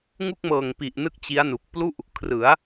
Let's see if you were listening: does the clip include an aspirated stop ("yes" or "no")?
yes